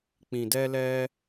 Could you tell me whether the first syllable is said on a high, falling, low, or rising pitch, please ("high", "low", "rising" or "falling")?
low